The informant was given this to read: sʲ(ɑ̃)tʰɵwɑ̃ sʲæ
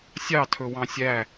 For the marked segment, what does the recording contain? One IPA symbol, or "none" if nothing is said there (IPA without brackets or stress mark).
ɑ